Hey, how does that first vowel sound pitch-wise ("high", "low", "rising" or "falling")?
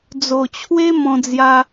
low